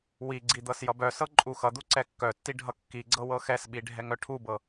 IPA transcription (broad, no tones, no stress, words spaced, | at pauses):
wiɡ͡ǀi d̪ɤsjʌbœsɤ ǃʼuxʌd̪u ǀɛkːœtːi ɖʱʌkːiɡ͡ǀɤ wɤxɛsɓi ɖʱɛŋœʈʰubɤ